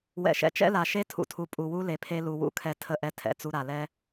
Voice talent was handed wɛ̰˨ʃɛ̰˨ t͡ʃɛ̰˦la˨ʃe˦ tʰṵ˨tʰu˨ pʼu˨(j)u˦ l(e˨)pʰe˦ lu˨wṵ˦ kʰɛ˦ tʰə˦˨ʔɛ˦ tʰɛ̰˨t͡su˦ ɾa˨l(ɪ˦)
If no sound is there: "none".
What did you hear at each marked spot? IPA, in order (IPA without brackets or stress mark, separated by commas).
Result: w, e˨, ɛ˦